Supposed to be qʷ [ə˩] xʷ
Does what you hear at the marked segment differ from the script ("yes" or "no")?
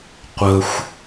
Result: no